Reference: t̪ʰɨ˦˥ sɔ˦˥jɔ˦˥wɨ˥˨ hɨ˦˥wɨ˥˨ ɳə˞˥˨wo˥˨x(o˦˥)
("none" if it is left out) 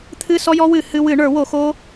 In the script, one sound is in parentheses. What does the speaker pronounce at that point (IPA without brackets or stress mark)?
o˦˥